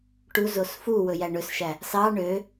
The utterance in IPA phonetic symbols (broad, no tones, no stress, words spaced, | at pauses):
ʈuzos fuwɵjæ ɳɵsʃæ | sɑ ɳø